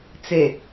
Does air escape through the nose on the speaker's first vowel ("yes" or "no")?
no